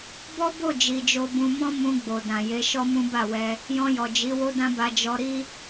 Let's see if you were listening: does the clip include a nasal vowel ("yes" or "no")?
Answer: yes